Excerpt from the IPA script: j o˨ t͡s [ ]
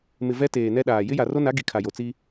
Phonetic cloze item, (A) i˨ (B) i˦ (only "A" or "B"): B